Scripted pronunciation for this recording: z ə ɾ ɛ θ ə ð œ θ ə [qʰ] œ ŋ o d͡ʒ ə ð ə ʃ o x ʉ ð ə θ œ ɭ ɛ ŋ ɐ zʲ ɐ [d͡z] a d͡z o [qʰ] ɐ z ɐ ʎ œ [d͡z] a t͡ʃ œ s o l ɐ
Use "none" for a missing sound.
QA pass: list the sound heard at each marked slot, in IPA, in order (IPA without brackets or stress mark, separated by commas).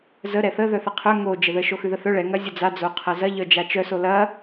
qʰ, d͡z, qʰ, d͡ʒ